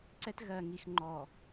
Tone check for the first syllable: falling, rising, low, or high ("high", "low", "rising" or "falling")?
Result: high